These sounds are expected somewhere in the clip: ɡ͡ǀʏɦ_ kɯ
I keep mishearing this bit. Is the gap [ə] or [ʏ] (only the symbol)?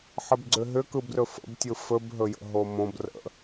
ʏ